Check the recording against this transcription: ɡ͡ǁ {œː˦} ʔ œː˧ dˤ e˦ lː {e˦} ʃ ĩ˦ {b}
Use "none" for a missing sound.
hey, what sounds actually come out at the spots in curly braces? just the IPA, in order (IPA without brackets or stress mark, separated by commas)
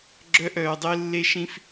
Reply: œ˦, e˦, f